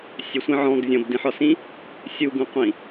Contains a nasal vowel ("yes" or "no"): yes